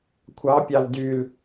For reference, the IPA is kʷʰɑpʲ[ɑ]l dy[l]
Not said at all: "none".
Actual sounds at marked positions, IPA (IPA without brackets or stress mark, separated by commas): ɑ, l